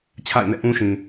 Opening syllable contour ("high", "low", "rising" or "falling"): falling